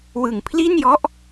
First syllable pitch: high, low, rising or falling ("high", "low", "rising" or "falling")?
low